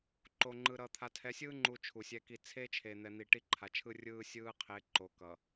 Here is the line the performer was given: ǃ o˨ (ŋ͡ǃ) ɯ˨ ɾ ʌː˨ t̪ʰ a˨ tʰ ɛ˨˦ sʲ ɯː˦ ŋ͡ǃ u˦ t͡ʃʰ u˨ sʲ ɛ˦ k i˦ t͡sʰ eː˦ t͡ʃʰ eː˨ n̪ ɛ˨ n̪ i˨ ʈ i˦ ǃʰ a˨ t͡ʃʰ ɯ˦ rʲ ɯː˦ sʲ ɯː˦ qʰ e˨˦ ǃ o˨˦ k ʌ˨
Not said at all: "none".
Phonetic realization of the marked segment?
ŋ͡ǃ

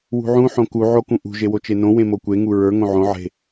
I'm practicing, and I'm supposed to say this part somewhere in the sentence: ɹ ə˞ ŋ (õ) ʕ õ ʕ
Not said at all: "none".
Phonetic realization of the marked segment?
õ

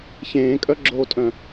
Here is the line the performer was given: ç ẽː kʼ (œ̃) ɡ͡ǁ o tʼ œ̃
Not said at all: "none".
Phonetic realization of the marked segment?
œ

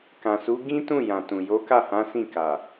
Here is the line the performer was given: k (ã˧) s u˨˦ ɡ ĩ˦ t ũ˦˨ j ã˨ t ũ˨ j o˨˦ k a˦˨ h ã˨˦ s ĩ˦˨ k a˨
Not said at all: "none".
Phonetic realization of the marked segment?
ã˨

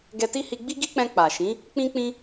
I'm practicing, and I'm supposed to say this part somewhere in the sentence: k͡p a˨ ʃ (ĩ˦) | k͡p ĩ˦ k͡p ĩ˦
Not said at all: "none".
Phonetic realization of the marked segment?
ĩ˨˦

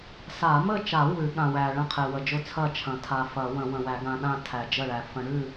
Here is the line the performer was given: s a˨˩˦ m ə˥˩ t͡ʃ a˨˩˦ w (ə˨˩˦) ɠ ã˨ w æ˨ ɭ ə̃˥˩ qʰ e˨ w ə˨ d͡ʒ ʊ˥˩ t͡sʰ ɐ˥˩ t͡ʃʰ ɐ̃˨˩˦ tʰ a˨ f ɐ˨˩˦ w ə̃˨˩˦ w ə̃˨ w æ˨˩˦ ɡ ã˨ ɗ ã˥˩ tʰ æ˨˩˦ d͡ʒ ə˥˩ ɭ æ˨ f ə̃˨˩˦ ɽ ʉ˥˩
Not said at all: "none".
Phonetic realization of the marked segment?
ʉ˨˩˦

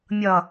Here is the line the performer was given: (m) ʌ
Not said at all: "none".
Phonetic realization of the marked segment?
mʲ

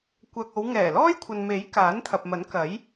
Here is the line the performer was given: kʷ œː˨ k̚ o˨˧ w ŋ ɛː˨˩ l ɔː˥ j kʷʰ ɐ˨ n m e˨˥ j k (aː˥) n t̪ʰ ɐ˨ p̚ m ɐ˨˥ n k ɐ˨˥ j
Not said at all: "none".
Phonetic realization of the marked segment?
aː˨˥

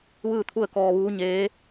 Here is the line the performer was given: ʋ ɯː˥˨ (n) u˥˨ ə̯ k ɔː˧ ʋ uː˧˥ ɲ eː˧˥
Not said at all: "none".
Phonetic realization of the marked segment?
t̪ʰ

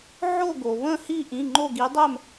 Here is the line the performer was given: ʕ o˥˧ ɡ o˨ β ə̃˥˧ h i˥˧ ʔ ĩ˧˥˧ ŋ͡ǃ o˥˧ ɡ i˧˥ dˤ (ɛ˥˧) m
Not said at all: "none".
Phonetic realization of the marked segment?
ɛ˥˧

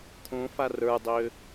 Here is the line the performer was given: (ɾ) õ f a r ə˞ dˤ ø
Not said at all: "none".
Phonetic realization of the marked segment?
t̪ʰ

